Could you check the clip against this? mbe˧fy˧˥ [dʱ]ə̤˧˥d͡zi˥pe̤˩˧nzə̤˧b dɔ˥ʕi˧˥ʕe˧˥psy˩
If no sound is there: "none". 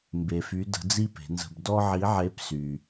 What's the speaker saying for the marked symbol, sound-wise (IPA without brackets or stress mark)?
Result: d